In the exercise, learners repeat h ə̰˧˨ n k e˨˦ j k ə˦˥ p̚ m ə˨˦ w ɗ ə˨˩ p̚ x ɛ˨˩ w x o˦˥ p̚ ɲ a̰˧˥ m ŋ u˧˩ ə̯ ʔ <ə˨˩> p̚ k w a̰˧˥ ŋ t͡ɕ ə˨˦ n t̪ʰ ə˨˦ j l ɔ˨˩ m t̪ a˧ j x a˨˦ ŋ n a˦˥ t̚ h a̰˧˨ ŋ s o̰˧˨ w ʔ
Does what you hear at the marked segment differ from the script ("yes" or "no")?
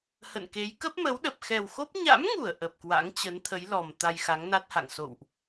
no